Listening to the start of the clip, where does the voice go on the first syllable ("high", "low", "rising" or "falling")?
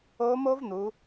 rising